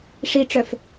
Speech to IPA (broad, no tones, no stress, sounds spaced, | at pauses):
ʂ i ʈ͡ʂ œ f